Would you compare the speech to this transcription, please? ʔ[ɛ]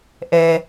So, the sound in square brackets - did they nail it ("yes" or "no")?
yes